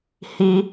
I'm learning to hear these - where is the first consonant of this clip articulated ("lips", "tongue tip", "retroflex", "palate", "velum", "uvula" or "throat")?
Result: throat